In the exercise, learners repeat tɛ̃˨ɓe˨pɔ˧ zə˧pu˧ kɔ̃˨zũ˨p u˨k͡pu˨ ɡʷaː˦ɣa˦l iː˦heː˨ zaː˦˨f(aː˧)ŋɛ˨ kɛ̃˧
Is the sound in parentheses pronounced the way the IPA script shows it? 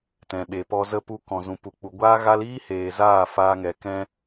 yes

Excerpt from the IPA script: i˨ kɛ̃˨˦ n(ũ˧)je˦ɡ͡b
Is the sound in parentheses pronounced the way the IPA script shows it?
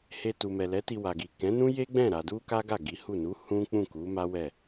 no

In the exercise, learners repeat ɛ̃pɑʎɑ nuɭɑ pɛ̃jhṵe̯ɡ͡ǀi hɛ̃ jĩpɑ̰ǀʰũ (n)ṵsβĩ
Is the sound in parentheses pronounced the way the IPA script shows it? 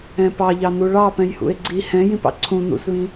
yes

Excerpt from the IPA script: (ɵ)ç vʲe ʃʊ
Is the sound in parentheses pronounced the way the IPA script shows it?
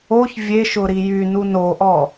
no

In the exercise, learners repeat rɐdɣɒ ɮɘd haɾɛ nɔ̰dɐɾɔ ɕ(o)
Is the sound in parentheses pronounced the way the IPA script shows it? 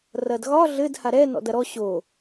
yes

